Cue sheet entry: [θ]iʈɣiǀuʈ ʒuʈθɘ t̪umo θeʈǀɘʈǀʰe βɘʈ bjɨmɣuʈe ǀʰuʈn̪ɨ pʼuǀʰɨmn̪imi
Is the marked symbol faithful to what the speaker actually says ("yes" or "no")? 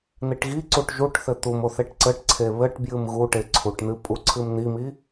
no